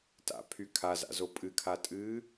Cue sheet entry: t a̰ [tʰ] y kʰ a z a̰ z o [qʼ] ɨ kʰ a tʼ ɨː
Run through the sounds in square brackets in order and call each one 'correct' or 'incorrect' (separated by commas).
incorrect, incorrect